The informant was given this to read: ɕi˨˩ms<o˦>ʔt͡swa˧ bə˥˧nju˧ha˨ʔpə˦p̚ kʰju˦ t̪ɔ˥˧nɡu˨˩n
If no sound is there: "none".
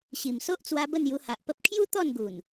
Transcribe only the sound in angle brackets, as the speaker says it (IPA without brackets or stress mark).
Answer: o˦